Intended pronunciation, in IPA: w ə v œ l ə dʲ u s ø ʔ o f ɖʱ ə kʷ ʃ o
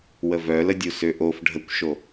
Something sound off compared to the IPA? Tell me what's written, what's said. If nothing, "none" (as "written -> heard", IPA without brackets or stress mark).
none